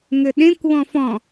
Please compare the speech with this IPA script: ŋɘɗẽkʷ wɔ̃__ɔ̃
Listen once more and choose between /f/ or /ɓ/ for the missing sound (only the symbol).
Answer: f